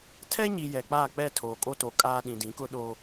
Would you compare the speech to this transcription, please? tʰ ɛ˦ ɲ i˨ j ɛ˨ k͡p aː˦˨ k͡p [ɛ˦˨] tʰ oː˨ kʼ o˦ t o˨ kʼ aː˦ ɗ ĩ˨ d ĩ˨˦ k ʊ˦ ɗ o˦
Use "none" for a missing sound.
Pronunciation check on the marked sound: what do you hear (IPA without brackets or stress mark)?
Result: ɛ˦˨